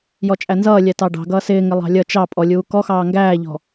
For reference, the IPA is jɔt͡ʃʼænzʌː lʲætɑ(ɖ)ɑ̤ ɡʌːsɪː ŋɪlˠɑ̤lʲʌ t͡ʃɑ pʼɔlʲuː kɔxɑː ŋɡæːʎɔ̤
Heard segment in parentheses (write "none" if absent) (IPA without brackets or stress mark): ɖ